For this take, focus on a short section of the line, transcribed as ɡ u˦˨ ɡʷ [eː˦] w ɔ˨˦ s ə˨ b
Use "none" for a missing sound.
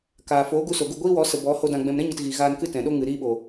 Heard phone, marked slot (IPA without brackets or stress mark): iː˦